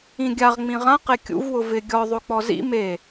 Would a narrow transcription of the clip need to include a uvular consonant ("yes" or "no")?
yes